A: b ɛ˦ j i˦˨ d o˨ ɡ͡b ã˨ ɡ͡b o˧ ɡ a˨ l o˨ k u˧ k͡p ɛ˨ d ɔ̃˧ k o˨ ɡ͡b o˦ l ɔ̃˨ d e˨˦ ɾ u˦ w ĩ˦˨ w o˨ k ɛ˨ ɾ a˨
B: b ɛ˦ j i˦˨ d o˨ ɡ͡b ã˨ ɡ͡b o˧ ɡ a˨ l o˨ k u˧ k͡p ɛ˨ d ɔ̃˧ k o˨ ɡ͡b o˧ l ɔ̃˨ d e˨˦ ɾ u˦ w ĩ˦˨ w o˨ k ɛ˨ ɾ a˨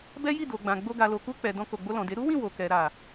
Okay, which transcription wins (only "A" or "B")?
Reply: B